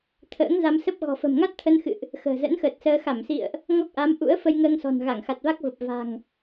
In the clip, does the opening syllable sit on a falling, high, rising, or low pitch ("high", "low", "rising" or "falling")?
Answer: rising